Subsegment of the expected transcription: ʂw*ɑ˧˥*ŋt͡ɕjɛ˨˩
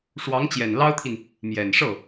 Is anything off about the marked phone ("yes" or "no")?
no